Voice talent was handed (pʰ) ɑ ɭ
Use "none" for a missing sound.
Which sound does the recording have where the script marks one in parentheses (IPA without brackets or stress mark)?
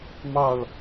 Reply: m